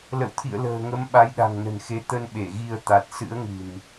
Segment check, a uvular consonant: absent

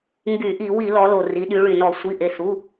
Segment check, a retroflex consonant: present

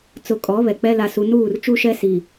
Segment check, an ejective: present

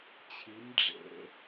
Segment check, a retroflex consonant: present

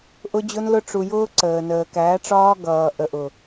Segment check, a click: present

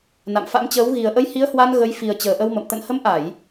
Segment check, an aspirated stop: absent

